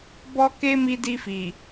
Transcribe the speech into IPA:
b ɔ˦ k e˦ m i˧ d i˧ f i˨

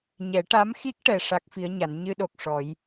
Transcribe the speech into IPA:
ɲ ɛ˨˩˦ ʈ a˧˥ m x i˦˥ k̚ ʈ ɛ˧ ʂ a˦˥ k̚ f i˧˥ ə̯ ɲ a˨˩˦ n ɲ ɨ˧ ɗ o˨˩ k̚ ʂ ɔ˨˩˦ j

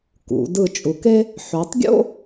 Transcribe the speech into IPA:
k ṵ˩˧ d ɯ˧˩ t͡ʃʼ u˩˧ k e˥ | ħ ø˩˧ tˤ ɡʲ o̰˥

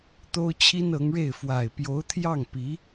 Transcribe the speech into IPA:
t̪ o˥ ʊ̯ t͡ɕʰ i˥ n ɤ˧˥ ŋ ɻ e˥˩ ɪ̯ f w a˨˩ ɪ̯ p j o˧˥ ʊ̯ t̪ʰ j ɑ˥˩ ŋ p i˧˥

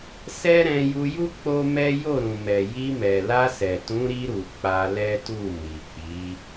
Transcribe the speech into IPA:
s ɛ˦ ɾ ɛ̃˧ j u˧ j u˦ k͡p o˦ m ɛ˦ j o˦˨ ɾ ũ˨ m ɛ˨ j i˧ m ɛ˨ l a˧ s ɛ˨ t ũ˨˦ ɾ i˧ ɾ u˨ k͡p a˧ l ɛ˦ t u˦˨ m i˨ k͡p i˨˦

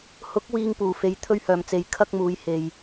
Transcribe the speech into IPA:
h ʊ˨˥ k̚ w iː˨ ŋ p uː˨˩ f e˨ j t̪ʰ ɵ˥ ɥ h œː˨˩ m t͡s e˨ j kʰ ɐ˥ k̚ m uː˨˧ j h e˨ j

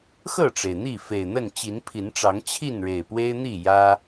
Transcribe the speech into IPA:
x ɤ˥˨ ʈ͡ʂ e˩ ɪ̯ n̪ i˥˨ f e˨˩ ɪ̯ n̪ ə˥˨ n t͡ɕ i˨˦ n pʰ i˨˦ n ʈ͡ʂ ɑ˨˦ ŋ t͡ɕʰ i˥˨ n ɻ e˨˩ ɪ̯ p w e˦ ɪ̯ n̪ i˥˨ j ä˦

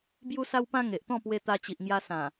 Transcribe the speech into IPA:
b j u˧ s a˧ w p ã˧ ŋ e˨ ʔ t̪ ɔ̃˥˧ p w e˧ t̪ a˧ t͡ɕ i˨ ʔ ŋ j a˧ s ã˨˩

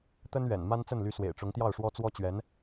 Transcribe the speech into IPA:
t̪ ə˥ n ɥ ɛ̰˨˩ n m a˥ n t͡s ə˥˩ n l y˧˥ s w ḛ˨˩ ɪ̯ ʈ͡ʂ ʊ˧˥ ŋ t̪ j ɑ˥˩ ʊ̯ ʂ w ɔ˥ t͡s w ɔ˥ t͡ɕ ɥ ɛ˧˥ n

